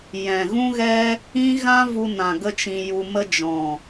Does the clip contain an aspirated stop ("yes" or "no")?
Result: no